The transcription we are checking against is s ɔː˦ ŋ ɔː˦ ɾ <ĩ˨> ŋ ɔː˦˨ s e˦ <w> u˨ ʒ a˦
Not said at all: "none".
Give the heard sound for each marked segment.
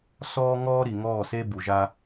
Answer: i˨, b

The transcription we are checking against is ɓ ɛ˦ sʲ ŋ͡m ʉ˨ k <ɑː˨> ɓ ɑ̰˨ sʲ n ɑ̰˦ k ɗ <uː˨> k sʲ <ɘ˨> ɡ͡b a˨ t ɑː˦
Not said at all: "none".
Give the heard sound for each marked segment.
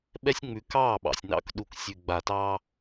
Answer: ɑː˦˨, u˨, ʉ˨

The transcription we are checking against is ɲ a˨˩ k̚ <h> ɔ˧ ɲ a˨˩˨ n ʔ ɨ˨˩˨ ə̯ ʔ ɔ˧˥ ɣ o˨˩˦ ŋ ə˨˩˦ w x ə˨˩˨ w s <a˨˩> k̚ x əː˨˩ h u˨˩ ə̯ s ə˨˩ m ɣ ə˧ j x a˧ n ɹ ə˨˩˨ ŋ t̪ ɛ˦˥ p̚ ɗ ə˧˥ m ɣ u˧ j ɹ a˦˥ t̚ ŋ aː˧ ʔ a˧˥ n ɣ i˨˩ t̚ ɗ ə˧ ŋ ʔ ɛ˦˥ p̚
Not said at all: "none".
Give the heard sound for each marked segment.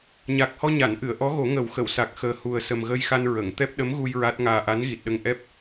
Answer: h, a˨˩

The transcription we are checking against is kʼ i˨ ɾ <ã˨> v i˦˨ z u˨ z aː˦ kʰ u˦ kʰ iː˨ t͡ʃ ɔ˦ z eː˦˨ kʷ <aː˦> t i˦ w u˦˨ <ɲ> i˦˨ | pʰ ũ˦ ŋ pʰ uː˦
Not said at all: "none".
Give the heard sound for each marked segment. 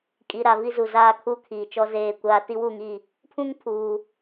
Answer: a˨, aː˦, ŋ

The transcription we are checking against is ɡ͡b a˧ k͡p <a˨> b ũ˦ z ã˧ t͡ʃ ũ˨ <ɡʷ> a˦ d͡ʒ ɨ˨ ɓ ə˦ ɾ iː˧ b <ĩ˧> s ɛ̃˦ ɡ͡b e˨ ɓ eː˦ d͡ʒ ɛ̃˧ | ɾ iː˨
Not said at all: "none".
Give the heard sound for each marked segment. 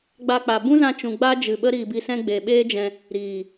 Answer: a˨, ɡ͡b, i˧

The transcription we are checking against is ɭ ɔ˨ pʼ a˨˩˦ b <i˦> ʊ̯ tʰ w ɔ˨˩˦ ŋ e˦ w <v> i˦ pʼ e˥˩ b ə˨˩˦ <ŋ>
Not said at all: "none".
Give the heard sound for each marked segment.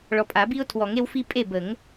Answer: i˦, f, ŋ

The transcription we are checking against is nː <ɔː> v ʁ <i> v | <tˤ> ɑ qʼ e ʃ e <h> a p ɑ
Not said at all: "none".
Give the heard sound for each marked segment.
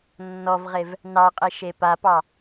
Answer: ɔ, e, n, p

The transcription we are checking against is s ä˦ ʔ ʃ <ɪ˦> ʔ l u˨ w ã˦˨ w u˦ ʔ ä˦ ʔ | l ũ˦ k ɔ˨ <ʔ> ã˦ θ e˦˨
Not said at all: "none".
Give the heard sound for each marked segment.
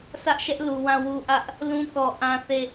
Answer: ɛ˦, ʔ

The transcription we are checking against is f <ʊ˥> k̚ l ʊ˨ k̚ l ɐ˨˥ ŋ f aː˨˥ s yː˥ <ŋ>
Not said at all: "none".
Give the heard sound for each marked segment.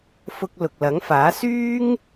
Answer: ʊ˧, ŋ

